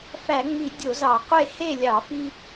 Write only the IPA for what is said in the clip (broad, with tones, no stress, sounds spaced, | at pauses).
f æ˧˩˧ ŋ͡m i˧˩˧ dʲ o˧˩˧ z ɑ˧˩˧ qʷ e˥˨ h e˥˨ lʲ ɑ˧˩˧ f i˦